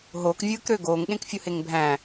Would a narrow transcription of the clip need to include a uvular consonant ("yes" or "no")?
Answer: no